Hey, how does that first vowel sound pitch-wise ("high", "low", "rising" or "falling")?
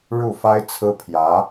falling